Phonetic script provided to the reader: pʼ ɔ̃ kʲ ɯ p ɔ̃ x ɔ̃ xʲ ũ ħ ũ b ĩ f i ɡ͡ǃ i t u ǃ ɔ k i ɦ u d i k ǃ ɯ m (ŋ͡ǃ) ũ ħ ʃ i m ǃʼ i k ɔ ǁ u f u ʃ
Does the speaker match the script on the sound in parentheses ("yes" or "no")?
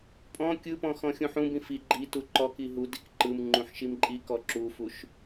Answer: yes